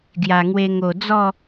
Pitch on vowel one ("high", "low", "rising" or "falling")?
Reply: low